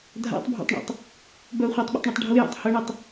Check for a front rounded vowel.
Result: present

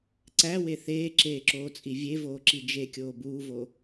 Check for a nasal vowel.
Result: absent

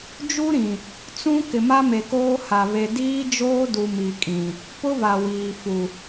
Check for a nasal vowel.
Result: present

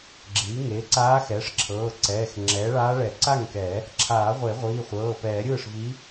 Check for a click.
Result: present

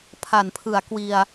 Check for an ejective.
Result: absent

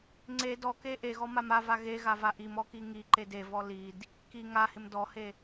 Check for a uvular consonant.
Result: absent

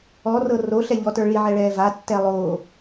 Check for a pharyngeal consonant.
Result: present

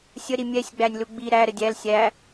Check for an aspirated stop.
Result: absent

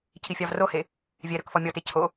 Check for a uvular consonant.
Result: absent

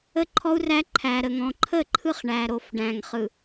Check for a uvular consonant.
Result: present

